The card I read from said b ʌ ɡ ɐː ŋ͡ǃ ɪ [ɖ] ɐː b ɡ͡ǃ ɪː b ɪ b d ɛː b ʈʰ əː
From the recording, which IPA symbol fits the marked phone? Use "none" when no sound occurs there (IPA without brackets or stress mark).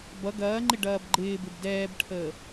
ɖ